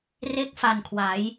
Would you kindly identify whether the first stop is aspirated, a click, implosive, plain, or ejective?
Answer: plain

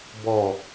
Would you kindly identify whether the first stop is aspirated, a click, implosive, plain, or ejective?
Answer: plain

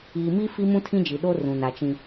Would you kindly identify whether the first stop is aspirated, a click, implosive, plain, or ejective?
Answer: aspirated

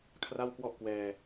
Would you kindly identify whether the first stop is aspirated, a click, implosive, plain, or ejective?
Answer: aspirated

